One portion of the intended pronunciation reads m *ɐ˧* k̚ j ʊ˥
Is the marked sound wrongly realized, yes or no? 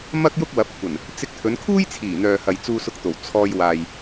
yes